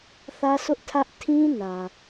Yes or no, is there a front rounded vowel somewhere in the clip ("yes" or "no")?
no